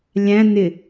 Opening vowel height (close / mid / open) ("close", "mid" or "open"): open